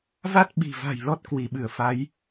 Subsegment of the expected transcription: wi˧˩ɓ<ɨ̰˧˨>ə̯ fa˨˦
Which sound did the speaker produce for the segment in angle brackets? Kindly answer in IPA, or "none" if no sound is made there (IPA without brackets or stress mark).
ɨ˧˩